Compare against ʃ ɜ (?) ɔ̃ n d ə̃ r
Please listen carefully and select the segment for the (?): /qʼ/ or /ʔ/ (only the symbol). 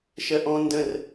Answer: ʔ